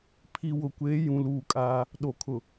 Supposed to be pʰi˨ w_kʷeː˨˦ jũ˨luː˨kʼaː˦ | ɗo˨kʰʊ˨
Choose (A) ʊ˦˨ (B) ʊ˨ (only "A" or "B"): B